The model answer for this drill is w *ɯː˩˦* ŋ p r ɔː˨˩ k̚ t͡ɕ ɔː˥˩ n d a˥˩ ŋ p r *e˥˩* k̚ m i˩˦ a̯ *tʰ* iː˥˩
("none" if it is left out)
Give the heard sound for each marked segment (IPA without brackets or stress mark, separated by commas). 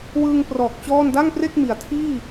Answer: ɯː˧, e˥˩, tʰ